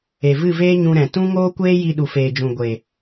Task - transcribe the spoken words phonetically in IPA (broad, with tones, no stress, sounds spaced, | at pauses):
e˨ v ɨ˦˨ v eː˦ ɲ ũ˧ ɾ ɛ̃˨ t ũ˦ ŋ oː˦ kʷ eː˦ j i˧ ɗ u˨ f eː˨ d͡ʒ ũ˨ ɡʷ e˨